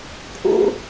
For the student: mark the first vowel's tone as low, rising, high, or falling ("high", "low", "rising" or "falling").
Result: high